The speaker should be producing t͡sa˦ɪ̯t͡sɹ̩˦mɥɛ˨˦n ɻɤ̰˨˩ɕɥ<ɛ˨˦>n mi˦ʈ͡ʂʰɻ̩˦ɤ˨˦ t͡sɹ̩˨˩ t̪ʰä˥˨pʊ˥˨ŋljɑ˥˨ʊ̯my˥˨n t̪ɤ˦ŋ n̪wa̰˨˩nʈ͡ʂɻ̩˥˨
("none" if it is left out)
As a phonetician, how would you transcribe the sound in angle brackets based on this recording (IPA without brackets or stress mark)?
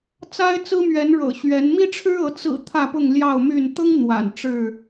ɛ˨˦